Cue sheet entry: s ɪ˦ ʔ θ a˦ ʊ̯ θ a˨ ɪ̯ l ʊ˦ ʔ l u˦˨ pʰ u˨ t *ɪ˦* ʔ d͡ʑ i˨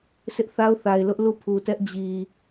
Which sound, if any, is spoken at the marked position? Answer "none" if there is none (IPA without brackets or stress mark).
ɛ˦